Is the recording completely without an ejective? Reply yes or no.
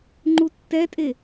no